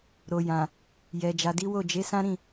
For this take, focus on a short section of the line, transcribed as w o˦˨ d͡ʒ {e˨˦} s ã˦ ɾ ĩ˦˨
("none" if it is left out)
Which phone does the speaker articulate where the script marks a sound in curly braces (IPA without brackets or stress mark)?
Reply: e˨˦